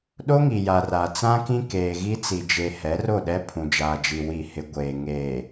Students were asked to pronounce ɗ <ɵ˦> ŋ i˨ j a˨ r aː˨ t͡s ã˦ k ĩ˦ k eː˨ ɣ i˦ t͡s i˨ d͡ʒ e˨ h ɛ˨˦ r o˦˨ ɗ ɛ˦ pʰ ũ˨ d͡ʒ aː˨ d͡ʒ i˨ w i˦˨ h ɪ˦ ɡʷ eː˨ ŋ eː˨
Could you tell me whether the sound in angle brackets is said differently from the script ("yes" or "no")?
yes